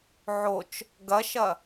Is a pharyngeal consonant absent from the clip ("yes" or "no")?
no